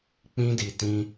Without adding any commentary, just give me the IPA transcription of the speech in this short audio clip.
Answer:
k͡p ĩ˦ d i˨ t ĩ˧

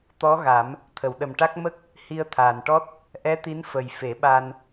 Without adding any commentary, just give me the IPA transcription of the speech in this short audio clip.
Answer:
t̪ ɔ˧˥ ɣ a˨˩˦ m | t̪ʰ ə˨˩˨ w ɗ ə˨˩ m ʈ a˦˥ k̚ m ə˦˥ k̚ | h i˧ ə̯ t̪ʰ aː˨˩ n ʈ ɔ˦˥ t̚ | ʔ ɛ˧˥ t̪ i˧˥ n f ə˨˩ j f e˨˩˦ ɓ a˧ n

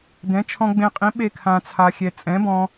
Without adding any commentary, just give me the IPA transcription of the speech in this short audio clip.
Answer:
d ɛ̃˨˥ t͡ʃʰ ɔ̃˧ ɡ͡b ẽ˧ qʼ ĩ˨˥ ɓ e˥˧ kʰ ã˧ t͡sʰ a˧ xʲ ɛ˧ t͡sʼ ɛ̃˨˥ b ɔ̃˧

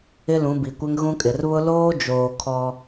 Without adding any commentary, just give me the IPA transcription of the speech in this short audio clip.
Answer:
ɪ˦ l ũ˨˦ b i˨ kʷ ɪ˦ ŋ ɣ ũ˦ kʼ ɪ˨ r β ʊ˦ l oː˦ d͡ʒ oː˨ kʰ ɔ˦

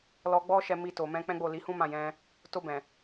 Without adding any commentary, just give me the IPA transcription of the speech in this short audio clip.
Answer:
l ɔ˧ ɡ͡b ɔ˦ ʃ ɛ˧ m i˧ t o˨ m ɛ̃˧ k͡p ɛ̃˦ ɡ͡b o˦˨ l i˨˦ h ũ˦ m ã˦˨ j ɛ̃˧ | t o˧ b ɛ̃˨

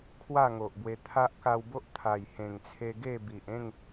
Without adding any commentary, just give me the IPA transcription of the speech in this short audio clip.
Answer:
kʰ w a˥˧ ŋ o˨ ʔ b w e˧ t̪ʰ a˦ ʔ k a˧ w b o˦ ʔ t̪ʰ a˨˩ j h ẽ˨˩ ŋ t͡sʰ e˧ ɡ e˥˧ b i˨ ʔ ẽ˥˧ ŋ

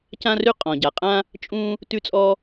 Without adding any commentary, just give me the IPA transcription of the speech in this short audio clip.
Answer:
c ã˥ r ʉ˥ qʼ ɔ̃˩ ɟ a˩ qʼ ã˥ | t͡ʃʼ ũ˥ | t ʉ˥ t͡sʼ ɔ˥

